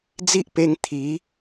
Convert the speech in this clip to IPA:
d͡zi˦ʔpe˧ŋ t̪ʰi˨˦

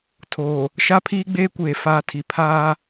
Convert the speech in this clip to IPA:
tʰoː˨ | ʃa˦pʰiː˦ɡ͡beː˦kʷeː˨ faː˦tʰi˨ pʰaː˦

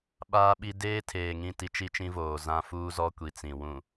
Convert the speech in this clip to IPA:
ɓaː˦ɓi˦ deː˦ tʰeː˨ŋĩ˦˨ti˦ t͡ʃi˦t͡ʃĩ˦voː˨ zã˦ fuː˦zɔ˦kʷi˨ t͡sĩ˨wũ˨

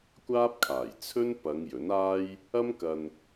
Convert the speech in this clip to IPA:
kʷaː˥p̚kʰaː˨˩j t͡sʰɵ˥n pɐ˨˧ŋ jɵ˨˥naː˥j | ɐ˥mkɐ˧n

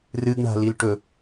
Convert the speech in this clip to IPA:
rɨɡɳa̤ lilʈɵ

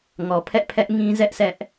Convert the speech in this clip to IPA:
ŋɔ˨pʰɛ̰˦˨ pʰɛ˦ʔŋĩ˦ zɛ˦ʔsʰɛ˦ʔ

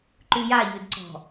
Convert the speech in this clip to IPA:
ǃʉja ʎʉdǀɔ̤

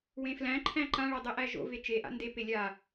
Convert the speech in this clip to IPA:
wẽflæ̃ǃʰæ̃ ǃãɭɛ dˤeʔæʒo̰ve t͡ʃeʔa̰ ndepe lʲa

